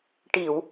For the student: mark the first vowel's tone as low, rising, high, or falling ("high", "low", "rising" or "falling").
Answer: low